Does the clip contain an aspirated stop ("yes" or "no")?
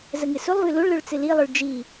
no